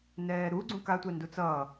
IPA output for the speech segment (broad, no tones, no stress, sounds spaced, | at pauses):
n ɛː ɾ u ɡ͡ǀ ũ k a tʷ ɛ n d u t͡s ʌː